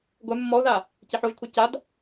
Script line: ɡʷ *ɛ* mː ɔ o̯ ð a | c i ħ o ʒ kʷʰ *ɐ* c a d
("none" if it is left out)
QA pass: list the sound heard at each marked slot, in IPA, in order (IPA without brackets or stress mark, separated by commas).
ɛ, ɐ